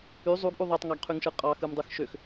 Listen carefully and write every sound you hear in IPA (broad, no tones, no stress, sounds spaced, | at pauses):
y zˤ u ɡ ʔ u ðˤ e tˤ ŋ ɑ ɡ qʰ y ŋ ʃ ɯ qʼ ɑ x ɯ m dˤ ɯ x ʃ ø x